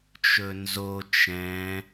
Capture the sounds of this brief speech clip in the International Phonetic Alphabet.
t͡ʃ ɵ n z o t͡ʃ ɛ̃

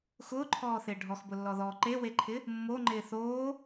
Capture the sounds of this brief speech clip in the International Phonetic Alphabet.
x ʊː ǃʰ ɔː θ ɪː ɖʱ ɔ x b ʊ lː ɔ ð ɔː ǃ e w e ǃʰ ɪ | mː o ŋ͡ǃ ɪː θ oː

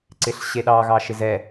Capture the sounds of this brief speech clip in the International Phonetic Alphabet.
ǀ ɪ ɬ ɕ e ɗ ɑ ɣ ɑ ʃ ɪ z ɛ

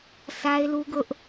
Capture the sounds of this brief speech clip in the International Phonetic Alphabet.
s a˦ ɪ̯ l u˦ ɡ ʊ˦ ʔ

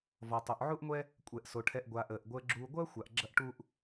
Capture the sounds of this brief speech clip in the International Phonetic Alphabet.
v ɔ˩ tˤ o˩ ʔ ʕ u˦ ʔ ŋʷ ɛ˦ | kʷʼ ɛ˩ ʔ s o˩ ʈʰ ɛ˨ ʔ ɡʷ aː˩ ʔ əː˩ ʔ ɡʷ əː˨ ɡ͡ǁ uː˨ ɡʷ ɐː˥ xʷ a˩ ʔ ɡ͡ǁ ɐ˦ ʔ ʈ u˦ ʔ

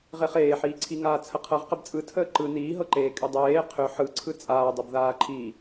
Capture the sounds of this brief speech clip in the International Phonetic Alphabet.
ʁ e χ eː ħ iː ǀʰ i ŋ aː t͡sʰ ə qʰ ɤ ʁ q ə b t͡sʼ ɯ tʰ əː ǃ ɯ n iː ɦ ɤ ǃ eː kʼ y dˤ eː qʰ ʏ ħ ɯ ǀʰ ɯ t͡sʼ aː dˤ ɯ b ð aː ǃʰ i

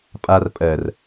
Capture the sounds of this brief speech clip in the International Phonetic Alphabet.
pʼ a r pʼ ɜ r

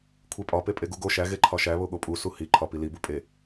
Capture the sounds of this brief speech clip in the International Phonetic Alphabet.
kʷʰ e pʼ ɒ p e pʼ e ɡ u ɡ o ʃ æ ɣ e ǃʰ ɒ ʃ æ β o ɠ o pʼ u s u h i ǃʰ ɒ p i l i b u pʼ e

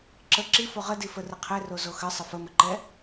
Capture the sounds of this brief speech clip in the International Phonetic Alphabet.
ǁ ə ǁ i f o ʁ ə d i f ə r ɘ qʰ ɛ r o z o x ɘ sˤ ə f ə m ə ǃ ɛ

